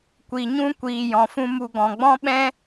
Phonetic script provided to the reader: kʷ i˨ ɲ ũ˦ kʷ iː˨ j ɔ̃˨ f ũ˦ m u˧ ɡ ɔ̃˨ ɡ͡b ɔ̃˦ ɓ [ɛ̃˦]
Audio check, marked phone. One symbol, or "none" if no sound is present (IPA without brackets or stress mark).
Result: ɛ̃˦